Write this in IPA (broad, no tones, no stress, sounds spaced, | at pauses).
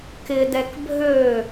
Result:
k ɪ d ɛ k bʱ ø